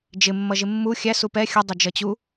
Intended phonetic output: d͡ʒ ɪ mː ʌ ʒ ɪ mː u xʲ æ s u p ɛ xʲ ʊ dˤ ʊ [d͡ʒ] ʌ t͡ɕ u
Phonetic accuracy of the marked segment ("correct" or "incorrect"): correct